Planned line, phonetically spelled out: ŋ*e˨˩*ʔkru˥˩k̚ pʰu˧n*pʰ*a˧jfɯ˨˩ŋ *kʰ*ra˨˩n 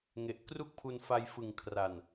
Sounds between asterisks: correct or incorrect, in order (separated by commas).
correct, incorrect, correct